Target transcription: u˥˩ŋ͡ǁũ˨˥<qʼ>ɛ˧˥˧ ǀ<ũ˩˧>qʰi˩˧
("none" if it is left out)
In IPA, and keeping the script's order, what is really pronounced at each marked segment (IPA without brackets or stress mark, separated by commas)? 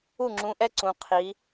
ʔ, ũ˩˧